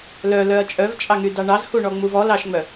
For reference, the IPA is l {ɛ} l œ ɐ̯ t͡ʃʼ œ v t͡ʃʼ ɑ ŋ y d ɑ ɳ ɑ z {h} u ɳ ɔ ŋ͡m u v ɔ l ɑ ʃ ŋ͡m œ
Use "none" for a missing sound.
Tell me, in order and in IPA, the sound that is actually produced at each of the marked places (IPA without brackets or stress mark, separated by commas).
œ, h